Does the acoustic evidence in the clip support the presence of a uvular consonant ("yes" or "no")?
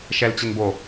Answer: no